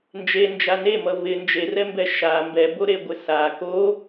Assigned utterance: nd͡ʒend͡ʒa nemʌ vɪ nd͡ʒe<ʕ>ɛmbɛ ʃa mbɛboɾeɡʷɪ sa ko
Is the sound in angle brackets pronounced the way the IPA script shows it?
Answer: no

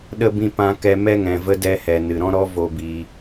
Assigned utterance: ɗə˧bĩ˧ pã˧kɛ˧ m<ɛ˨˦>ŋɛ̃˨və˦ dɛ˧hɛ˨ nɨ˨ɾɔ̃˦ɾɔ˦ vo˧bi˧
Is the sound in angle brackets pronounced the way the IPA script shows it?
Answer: no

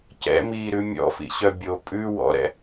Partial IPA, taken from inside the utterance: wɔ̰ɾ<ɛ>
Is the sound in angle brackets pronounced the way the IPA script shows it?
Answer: no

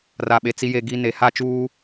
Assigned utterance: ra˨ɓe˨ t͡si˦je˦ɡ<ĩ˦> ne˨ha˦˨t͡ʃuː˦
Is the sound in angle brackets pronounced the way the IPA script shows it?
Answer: no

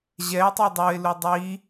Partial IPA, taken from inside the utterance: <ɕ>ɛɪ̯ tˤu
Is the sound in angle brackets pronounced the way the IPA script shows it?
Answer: no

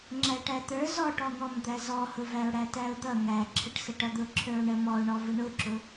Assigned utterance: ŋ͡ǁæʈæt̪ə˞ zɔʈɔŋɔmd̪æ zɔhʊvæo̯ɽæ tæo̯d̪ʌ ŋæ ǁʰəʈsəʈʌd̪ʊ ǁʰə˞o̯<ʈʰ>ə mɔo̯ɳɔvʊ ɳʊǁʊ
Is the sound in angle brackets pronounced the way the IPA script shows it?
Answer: no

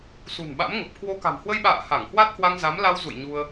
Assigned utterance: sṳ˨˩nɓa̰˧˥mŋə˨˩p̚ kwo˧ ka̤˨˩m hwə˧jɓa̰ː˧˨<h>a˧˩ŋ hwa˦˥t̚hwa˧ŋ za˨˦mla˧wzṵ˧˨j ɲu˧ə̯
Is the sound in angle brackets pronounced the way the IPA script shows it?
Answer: yes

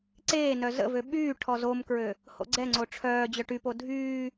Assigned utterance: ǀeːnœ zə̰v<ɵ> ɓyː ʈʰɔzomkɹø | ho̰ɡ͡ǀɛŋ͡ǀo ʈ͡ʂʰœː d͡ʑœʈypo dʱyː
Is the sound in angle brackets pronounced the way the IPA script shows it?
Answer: no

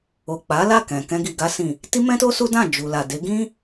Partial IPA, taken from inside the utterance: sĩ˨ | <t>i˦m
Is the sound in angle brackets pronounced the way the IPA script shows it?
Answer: yes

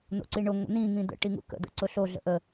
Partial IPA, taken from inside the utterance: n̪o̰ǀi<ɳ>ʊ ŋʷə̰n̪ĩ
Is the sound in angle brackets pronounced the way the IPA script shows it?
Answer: yes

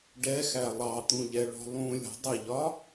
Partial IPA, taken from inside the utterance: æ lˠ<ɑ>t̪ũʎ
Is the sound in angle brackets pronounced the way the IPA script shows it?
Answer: yes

